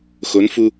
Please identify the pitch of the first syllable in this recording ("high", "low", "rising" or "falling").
rising